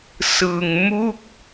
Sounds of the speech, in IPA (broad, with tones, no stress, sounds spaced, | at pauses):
s ɯ˧ ŋ m u˥˩ k̚